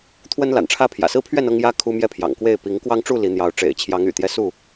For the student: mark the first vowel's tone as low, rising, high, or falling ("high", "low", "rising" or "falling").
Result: high